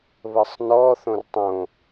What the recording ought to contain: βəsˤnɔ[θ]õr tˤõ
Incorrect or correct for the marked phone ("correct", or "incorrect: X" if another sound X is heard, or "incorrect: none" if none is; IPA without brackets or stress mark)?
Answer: correct